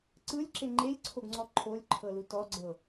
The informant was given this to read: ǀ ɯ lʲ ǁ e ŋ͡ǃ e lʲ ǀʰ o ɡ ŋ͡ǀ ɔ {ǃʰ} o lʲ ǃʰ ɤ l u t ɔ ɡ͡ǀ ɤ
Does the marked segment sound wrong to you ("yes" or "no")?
no